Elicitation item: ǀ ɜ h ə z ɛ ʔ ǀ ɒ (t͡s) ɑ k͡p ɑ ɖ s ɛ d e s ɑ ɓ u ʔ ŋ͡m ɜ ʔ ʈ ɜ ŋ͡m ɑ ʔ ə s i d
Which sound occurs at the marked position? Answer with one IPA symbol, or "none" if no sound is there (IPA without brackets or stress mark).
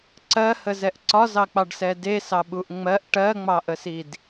z